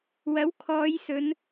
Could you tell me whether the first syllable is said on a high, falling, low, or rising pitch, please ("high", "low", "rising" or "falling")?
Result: rising